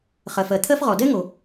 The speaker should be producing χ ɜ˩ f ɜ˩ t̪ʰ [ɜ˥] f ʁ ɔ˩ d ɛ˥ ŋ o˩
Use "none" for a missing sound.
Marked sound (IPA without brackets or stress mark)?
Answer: ɜ˥